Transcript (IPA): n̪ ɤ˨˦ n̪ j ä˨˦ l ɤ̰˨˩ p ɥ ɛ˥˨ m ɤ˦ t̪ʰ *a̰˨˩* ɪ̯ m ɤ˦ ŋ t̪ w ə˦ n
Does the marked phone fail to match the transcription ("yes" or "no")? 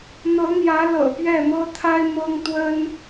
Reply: yes